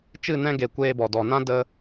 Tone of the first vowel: falling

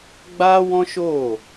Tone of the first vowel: high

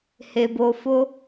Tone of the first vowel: low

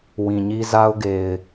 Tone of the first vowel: low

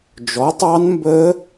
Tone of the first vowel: rising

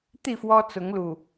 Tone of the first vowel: falling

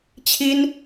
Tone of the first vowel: high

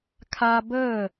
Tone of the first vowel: high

